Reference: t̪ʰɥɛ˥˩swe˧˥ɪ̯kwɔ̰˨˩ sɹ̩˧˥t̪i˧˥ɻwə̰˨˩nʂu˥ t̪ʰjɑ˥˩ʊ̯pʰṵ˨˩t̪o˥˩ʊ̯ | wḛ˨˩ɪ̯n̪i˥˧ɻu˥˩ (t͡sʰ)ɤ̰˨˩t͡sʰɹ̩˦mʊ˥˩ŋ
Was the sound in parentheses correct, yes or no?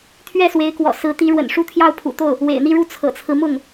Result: yes